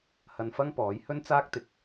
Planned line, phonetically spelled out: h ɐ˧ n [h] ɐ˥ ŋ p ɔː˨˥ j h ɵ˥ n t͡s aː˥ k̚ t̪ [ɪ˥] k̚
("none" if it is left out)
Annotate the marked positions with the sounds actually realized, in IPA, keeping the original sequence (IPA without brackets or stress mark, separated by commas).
f, ɪ˨˥